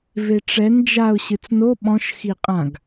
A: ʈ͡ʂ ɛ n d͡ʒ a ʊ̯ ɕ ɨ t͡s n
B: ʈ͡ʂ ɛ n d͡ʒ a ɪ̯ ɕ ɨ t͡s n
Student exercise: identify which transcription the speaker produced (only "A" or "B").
A